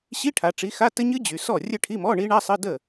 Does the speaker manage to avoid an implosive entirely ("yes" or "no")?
yes